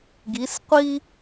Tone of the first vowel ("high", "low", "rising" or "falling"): rising